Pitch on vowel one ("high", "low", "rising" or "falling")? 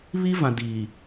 high